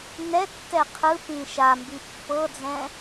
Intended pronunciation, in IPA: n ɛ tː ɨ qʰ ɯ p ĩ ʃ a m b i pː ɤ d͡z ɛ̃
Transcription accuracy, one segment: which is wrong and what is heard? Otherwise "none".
ɨ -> ɛ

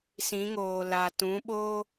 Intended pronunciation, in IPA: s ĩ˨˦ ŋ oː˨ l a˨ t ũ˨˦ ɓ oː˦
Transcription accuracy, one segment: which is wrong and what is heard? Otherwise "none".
none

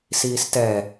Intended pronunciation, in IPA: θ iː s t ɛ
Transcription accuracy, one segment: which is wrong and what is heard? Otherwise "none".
θ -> s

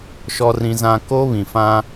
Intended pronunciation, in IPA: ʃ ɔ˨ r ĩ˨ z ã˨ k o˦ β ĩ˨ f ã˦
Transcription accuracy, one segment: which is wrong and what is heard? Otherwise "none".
none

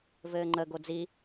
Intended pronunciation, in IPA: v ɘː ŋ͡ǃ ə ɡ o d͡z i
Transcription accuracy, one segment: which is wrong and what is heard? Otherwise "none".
none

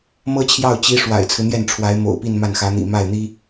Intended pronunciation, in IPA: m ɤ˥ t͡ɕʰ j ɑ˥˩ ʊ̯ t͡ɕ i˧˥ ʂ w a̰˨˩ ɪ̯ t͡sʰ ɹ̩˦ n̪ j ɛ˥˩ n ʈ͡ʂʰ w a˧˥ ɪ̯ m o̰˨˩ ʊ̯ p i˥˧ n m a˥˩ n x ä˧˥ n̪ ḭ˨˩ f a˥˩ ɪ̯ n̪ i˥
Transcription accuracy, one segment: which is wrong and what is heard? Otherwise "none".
f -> m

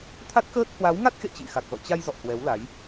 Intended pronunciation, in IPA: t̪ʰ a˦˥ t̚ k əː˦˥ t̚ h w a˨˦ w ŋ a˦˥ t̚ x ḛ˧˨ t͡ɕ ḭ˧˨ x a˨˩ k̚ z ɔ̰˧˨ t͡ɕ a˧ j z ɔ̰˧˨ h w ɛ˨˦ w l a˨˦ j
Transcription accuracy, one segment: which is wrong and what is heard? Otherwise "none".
none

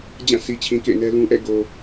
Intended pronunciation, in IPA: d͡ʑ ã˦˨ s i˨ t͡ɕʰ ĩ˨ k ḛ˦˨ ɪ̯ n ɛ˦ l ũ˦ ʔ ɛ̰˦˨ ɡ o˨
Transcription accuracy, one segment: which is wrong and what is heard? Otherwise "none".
none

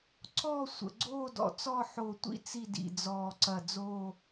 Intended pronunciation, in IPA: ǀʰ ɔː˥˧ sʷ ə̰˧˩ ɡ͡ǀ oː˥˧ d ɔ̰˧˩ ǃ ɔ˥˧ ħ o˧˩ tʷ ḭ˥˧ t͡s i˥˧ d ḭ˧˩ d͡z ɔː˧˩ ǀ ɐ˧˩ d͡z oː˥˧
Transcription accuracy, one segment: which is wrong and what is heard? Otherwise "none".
ǃ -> t͡s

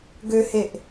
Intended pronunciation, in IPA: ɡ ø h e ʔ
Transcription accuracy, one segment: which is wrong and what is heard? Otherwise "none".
none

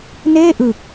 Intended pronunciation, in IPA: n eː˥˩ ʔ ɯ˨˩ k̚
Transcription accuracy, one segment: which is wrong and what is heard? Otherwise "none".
none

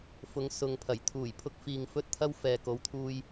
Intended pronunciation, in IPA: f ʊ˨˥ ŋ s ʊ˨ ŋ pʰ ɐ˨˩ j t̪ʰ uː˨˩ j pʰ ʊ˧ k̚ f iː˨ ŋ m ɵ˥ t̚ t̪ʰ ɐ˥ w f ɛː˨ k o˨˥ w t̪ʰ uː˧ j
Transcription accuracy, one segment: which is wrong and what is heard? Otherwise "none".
m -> f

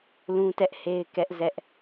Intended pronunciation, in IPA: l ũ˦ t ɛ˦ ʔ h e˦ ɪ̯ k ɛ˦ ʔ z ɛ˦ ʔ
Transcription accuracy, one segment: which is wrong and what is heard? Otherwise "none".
none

